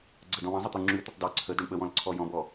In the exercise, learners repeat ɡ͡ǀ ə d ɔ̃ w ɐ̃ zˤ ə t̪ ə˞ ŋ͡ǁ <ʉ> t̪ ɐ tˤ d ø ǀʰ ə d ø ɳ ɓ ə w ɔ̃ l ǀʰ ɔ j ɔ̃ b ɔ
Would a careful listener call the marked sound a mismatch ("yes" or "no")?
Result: no